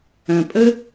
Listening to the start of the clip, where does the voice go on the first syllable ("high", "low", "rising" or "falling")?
low